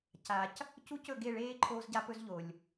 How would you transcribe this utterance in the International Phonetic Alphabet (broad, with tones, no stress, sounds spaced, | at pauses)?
c a˨ c | c u˦ c ɵ˦˨ ɡ e˦˨ ɭ eː˦ ǃʰ oː˦ z ɟ a˦ p ɵ˦ z ʎ o˨ lʲ